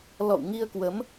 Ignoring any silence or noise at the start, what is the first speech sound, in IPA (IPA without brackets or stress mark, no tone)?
l